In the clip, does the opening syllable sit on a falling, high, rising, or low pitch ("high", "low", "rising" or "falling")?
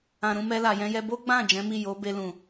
low